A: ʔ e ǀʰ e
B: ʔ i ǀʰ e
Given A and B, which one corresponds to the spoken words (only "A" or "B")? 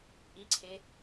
B